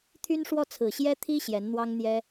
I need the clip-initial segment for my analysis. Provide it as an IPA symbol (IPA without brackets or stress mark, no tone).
t̪ʰ